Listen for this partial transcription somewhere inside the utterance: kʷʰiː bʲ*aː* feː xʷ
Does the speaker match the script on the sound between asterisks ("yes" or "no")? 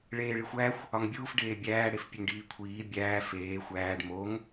no